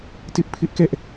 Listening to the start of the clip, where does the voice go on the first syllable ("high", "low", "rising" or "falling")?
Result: high